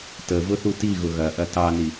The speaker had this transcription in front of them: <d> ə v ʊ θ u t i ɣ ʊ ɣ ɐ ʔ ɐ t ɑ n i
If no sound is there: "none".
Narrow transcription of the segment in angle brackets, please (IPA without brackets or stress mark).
t